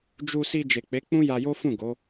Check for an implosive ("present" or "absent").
absent